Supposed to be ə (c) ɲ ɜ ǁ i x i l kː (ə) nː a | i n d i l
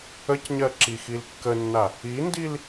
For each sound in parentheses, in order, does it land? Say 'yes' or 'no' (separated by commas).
yes, yes